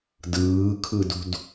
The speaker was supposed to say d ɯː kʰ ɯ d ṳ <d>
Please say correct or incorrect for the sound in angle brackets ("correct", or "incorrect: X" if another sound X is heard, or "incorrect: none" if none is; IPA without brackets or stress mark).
correct